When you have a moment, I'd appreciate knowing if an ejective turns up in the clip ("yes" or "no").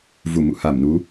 no